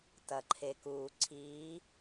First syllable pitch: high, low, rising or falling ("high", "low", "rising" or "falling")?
low